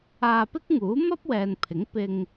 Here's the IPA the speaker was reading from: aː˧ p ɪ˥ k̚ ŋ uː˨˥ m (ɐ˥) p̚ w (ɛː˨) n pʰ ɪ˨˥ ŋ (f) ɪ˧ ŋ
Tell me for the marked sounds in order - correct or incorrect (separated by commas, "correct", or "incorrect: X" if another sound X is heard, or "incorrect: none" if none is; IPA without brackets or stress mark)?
correct, correct, incorrect: p